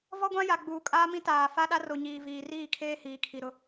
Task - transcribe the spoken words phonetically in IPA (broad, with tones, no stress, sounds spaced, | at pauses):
v ɔ˦ ɡʷ ã˦ j a˨ ɡ͡b uː˨ kʼ aː˦ m ĩ˦ t aː˨ f a˦ ɗ a˦ r o˨ ɲ iː˨ v iː˨ r iː˦˨ kʰ eː˦ h iː˨ kʰ i˨ ɾ ʊ˦